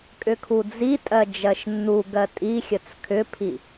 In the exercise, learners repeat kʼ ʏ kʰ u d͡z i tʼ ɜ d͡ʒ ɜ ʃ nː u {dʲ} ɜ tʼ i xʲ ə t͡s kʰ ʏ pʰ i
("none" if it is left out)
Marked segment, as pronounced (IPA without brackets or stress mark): ɡ